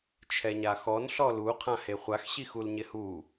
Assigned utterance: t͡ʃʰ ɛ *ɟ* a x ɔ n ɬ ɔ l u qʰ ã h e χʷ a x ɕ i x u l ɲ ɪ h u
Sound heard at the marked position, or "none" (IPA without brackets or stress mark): ɲ